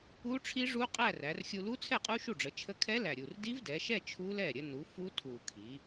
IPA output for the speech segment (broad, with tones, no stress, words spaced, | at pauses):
u˦˥ʈ͡ʂʰi˦˥ʐu˦˥ qʼæ˥˧ræ˩˧rxʲu˧ lu˦˥t͡sʰɛ˥˩qʼu˦˥ ʃu˥˩ɖ͡ʐə˩˧t͡ʃʰə˦˥ kʰɛ˦˥læ˨˩ɾʲu˨˩r di˦˥vdɛ˩˧ʃɛ˥˧ t͡ʃʰu˦˥lɛ˥˩ ɾʲə˧nu˩˧ fu˦˥tʰu˨˩kʰi˩˧